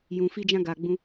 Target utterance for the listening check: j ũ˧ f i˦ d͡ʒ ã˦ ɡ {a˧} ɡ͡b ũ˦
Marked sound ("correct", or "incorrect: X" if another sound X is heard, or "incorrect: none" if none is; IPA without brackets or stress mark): correct